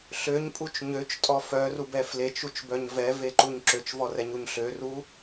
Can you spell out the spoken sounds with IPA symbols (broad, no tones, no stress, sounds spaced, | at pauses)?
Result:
ɬ ø ɲ pʼ u t͡ʃ ɲ ø t͡ʃ tʼ ɔ f œ r u b ɛ f l e t͡ʃ u t͡ʃ b œ ɲ v ɛ v e ǃ u ɲ ǁ ø t͡ʃ v ɔ r ɛ ɲ u ɲ ɬ ø r u